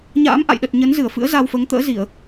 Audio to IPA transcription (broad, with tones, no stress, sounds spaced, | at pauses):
ɲ a̰ː˧˥ m ʔ a̰˧˨ j ɗ ə˨˩ t̚ ɲ ə˨˦ n z ɨ˧˩ ə̯ f ɨ̰˧˥ ə̯ z a˧ w f əː˨˦ ŋ t̪ ə̰ː˧˥ z i˧˩˨ ə̯